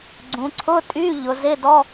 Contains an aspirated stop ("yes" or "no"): yes